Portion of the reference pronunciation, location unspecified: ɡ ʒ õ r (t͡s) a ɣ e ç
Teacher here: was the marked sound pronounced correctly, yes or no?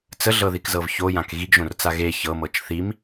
yes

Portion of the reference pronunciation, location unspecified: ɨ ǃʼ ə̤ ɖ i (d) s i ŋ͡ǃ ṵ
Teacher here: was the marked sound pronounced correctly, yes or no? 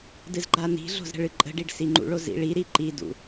no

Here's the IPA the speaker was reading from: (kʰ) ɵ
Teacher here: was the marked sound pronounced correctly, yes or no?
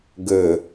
no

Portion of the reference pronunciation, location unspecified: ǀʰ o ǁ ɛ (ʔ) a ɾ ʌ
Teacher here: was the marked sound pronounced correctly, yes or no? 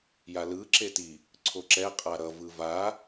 no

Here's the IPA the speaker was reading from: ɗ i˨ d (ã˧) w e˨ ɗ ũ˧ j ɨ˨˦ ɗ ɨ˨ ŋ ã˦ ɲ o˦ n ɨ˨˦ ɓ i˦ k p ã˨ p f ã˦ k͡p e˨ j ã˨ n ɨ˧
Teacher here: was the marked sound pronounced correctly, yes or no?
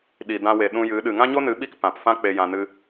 yes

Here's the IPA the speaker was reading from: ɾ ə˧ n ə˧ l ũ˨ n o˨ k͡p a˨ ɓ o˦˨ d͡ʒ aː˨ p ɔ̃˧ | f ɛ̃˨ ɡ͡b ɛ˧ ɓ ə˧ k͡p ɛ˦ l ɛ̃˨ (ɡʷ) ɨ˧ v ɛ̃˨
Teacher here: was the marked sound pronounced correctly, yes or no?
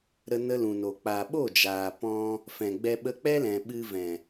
no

